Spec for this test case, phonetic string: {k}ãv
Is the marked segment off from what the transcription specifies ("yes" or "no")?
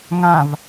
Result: yes